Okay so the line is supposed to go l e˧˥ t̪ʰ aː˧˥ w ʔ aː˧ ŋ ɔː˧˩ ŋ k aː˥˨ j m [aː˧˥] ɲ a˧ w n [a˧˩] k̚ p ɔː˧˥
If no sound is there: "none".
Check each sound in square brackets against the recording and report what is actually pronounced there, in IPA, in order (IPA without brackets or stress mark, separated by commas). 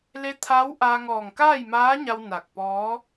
aː˧˥, a˧˩